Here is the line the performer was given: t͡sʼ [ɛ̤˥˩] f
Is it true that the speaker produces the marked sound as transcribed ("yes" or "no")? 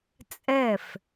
no